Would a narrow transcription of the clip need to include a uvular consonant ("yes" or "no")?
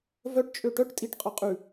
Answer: yes